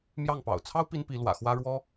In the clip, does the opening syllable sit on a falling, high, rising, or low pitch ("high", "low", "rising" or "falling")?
falling